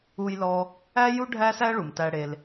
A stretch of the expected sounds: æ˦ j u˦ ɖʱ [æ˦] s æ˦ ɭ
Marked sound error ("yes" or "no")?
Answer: no